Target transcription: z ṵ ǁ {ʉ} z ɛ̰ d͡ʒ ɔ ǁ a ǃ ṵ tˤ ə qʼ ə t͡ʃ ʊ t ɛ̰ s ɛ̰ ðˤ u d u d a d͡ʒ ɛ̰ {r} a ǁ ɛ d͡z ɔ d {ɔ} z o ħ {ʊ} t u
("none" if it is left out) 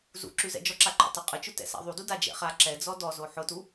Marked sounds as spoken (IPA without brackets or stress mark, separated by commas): ʉ, χ, ɔ, ʊ